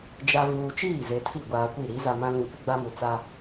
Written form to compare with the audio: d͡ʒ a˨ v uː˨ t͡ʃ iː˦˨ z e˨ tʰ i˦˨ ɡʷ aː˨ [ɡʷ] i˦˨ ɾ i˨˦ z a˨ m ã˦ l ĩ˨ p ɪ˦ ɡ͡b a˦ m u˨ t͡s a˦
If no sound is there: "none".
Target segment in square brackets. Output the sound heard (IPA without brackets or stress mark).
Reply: kʷ